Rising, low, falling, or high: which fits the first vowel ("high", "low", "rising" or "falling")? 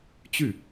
falling